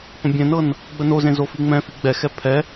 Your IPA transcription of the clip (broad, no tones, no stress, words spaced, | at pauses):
pə̃bʲɛ̃nɤn | ɡ͡bənozẽ zofiŋ͡mɛ̃fi ɡ͡bɛxɛ pʰɛ